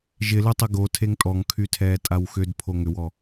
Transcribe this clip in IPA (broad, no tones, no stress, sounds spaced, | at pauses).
ʒ ɪ l ø tˤ ə ɡ o tʰ e ŋ tʼ ɔ ŋ kʰ y tʰ ɛː tʼ a w x ʏ d pʰ o ŋ ʏ w ɔ